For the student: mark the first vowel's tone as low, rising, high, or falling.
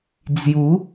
rising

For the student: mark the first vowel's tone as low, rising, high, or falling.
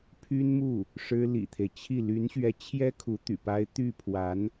high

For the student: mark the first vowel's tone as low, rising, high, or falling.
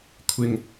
low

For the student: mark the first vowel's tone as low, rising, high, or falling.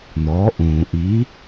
rising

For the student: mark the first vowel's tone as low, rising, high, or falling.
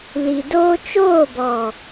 low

